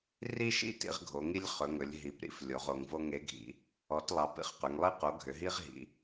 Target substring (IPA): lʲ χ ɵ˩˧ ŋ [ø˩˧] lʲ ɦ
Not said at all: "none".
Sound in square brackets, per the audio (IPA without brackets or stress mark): ɵ˩˧